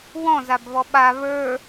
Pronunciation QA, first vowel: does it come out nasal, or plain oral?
nasal